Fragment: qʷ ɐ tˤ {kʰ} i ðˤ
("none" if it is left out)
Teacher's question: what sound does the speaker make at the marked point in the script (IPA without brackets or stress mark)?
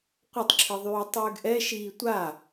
ǁʰ